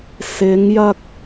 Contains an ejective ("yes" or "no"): no